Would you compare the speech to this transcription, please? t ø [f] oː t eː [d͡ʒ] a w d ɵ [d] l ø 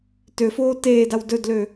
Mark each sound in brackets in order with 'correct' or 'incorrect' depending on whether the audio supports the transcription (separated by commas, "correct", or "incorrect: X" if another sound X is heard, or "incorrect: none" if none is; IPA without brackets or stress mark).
correct, incorrect: d, correct